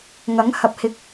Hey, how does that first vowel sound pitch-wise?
rising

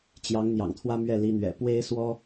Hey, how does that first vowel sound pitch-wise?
rising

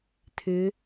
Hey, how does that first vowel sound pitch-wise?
rising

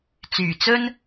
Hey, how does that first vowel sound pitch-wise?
low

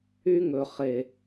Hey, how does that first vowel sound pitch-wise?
high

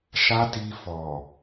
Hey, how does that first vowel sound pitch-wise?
high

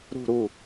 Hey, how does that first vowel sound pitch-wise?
falling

